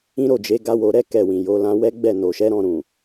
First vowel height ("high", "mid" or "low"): high